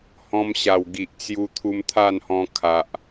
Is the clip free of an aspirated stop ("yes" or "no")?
no